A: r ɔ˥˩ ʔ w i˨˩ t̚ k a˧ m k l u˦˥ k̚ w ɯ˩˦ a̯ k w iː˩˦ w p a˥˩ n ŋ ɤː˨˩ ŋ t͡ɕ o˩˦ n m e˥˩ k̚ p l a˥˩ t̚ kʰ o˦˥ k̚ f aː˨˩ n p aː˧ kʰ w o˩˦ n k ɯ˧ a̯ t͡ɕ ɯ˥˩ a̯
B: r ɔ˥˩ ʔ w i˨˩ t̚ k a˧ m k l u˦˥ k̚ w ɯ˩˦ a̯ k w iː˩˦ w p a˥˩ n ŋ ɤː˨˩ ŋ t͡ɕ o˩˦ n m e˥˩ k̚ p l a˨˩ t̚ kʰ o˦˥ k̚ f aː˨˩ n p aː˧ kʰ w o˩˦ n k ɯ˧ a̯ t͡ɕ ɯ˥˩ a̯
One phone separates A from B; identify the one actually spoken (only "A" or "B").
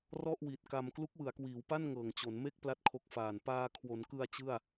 A